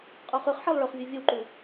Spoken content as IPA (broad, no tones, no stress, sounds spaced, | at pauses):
qʼ o χ ʉ χ ħ e lˠ ɭ ɵ χ vʲ ɵ vʲ ɵ w ǃ u